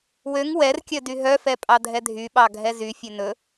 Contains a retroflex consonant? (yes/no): no